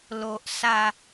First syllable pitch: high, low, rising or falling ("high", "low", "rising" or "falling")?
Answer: low